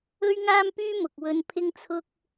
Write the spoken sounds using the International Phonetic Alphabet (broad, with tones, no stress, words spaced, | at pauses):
ɵ˥ɥŋaː˥mpyː˥mʊ˨k̚ wɵ˥n pʰɪ˥ŋt͡sʰʊ˥k̚